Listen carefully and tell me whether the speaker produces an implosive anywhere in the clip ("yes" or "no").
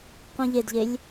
no